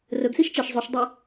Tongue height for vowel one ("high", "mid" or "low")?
mid